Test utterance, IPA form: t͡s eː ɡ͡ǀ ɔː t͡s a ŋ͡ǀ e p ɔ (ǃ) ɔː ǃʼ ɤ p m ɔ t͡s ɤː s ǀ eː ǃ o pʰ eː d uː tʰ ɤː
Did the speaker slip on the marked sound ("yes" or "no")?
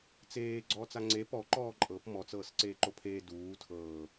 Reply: no